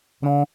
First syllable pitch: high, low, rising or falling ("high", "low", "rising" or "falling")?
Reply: high